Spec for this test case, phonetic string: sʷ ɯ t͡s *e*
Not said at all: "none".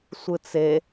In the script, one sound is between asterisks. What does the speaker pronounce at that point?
e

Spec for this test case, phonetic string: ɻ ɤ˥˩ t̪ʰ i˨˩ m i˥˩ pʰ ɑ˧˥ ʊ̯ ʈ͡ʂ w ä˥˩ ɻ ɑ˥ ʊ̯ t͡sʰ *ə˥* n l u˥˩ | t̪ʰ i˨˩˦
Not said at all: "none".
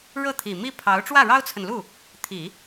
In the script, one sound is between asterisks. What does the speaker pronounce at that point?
ə˨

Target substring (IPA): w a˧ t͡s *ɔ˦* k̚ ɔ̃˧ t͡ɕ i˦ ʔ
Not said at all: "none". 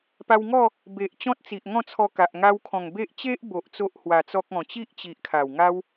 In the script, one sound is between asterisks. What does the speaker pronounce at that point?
ɔ˦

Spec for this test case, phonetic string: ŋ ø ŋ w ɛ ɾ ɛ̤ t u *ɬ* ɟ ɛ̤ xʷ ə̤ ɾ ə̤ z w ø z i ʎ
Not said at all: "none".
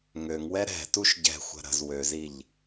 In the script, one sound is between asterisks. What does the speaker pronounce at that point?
ʃ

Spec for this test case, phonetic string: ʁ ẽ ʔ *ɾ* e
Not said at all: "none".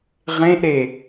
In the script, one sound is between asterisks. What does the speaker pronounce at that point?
ɾ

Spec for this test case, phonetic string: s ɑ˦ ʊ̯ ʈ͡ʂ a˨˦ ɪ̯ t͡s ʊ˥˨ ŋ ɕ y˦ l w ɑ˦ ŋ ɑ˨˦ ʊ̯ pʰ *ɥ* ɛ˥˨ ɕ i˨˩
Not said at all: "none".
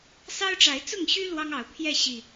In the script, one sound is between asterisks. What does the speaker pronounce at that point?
j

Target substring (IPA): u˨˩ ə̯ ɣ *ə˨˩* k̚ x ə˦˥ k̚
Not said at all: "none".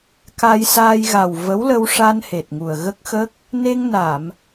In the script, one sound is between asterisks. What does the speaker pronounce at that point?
ə˦˥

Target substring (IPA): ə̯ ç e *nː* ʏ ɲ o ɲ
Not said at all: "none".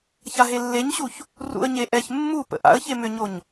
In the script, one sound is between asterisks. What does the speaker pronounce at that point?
m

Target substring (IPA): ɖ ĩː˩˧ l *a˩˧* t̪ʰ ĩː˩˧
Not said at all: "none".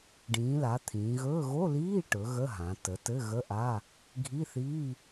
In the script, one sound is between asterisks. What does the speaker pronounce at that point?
a˩˧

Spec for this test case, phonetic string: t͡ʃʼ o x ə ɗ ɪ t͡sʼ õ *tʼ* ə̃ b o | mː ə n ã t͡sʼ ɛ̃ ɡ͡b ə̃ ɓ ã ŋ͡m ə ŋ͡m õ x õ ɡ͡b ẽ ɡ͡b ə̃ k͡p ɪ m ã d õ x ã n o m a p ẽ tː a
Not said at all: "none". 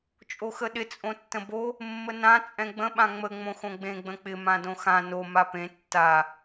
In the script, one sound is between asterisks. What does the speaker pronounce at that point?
tː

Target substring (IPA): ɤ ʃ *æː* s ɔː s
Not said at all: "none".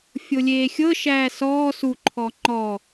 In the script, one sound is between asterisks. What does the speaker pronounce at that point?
æː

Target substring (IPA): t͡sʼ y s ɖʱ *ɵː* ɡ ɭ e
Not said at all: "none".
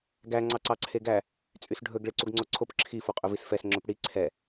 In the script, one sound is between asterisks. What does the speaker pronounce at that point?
ɵ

